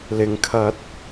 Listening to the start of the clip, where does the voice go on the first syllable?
low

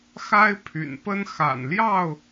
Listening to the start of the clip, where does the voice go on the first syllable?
high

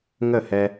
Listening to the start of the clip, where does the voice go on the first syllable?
falling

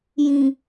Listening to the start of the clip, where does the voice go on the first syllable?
low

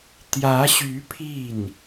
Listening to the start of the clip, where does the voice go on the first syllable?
rising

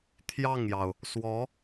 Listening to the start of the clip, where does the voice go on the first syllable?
falling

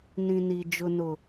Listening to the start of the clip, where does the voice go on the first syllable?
low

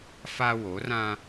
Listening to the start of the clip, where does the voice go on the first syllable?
high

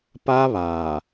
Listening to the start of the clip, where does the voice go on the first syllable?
high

